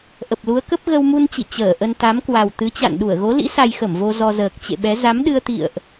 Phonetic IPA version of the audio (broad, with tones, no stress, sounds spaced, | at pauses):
ʔ ə˨˩ p̚ l u˨˦ ə̯ k ə˦˥ p̚ ɣ ə˧ w m u˧ n t͡ɕ ḭ˧˨ t͡ɕ əː˧˩ ʔ ə˧ n t̪ a˨˦ m k w a˨˩ w t̪ ɨ˨˦ t͡ɕ a̰˧˨ n ɗ u˧˩ ə̯ ɣ o˨˦ l ḭ˧˥ s a˧ j x ə˧˩ m v o˧ z ɔ˧ z əː˨˩ k̚ t͡ɕ ḛ˧˨ ɓ ɛ˨˦ z a˨˦ m ɗ ɨ˧ ə̯ t̪ ḭ˧˨ ə̯ ʔ